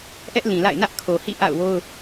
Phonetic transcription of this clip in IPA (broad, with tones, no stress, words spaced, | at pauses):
ʔɛ˦ʔlĩ˨la̰˦˨ɪ̯ nä˦ʔkʰo˨hḭ˦˨ ʔa̰˦˨ʊ̯wo˦ʊ̯